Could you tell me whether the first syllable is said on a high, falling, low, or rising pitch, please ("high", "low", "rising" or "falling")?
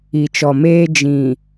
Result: low